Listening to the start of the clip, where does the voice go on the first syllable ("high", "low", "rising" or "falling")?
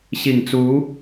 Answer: low